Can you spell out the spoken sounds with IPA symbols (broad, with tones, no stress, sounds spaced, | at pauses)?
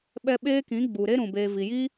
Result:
ɓ ɛ˧ ɓ eː˦ k ĩ˨˦ ɡ͡b u˨ ɾ e˦ ɾ ũ˨ b eː˨ v i˨ j i˦